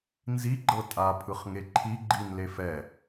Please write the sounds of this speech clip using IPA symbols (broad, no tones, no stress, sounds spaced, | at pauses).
n z i ɡ͡ǃ ɤ tʼ a pʰ ɯ χ ŋ e ǃʰ i ɡ͡ǃ i n l e f ɛ